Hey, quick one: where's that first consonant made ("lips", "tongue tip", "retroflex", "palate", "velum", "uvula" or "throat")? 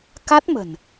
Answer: velum